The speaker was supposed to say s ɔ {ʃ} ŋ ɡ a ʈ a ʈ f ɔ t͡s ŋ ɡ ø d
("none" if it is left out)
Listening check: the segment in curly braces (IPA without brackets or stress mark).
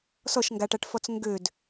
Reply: ʃ